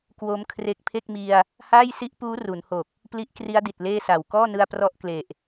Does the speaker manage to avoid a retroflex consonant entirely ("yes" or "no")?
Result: yes